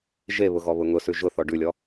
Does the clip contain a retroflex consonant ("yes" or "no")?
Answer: yes